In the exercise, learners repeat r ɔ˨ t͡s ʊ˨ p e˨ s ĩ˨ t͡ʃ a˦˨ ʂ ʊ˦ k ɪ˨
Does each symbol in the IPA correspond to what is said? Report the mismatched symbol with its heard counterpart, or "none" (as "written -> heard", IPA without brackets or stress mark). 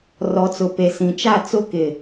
ʂ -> t͡s